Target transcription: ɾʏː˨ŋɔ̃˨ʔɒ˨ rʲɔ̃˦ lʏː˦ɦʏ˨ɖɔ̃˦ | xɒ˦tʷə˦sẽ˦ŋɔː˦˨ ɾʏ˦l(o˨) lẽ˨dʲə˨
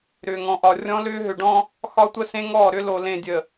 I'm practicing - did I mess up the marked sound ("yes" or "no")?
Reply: no